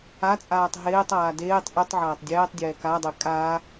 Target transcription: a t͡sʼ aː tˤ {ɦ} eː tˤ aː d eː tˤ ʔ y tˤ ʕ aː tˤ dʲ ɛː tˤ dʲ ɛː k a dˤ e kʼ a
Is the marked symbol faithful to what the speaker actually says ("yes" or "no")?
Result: yes